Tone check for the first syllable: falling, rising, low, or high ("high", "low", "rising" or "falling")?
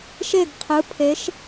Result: falling